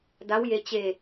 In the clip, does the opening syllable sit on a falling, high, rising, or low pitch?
rising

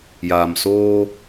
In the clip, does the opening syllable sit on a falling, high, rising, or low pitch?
low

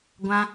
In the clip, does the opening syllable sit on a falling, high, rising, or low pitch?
high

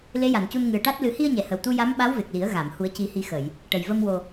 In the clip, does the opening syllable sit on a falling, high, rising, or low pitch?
rising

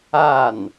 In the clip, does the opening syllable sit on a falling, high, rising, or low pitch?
falling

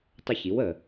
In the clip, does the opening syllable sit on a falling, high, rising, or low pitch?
high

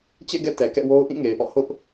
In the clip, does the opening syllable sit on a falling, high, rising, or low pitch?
falling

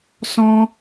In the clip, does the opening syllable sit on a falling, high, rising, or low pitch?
high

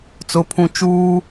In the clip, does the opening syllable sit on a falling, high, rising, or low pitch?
low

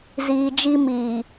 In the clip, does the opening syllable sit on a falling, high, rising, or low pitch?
low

